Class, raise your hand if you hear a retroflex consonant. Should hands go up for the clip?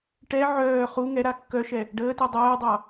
yes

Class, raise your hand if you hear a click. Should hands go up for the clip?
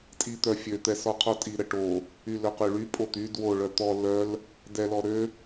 no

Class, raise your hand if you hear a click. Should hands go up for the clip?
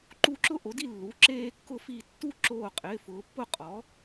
yes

